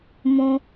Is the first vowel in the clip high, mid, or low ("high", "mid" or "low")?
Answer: high